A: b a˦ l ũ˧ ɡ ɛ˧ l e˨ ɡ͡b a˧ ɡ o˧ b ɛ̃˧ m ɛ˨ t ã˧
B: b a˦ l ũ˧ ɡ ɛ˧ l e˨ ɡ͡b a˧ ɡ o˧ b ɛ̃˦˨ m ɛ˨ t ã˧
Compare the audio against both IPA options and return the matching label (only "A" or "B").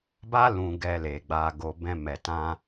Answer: A